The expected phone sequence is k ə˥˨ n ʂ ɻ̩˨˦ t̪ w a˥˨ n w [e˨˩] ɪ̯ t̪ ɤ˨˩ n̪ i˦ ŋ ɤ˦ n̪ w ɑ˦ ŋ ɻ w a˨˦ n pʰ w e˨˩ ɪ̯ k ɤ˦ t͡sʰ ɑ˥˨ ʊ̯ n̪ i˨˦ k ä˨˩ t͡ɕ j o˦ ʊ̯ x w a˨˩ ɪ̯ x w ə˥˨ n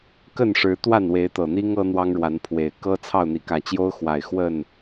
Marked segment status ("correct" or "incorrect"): incorrect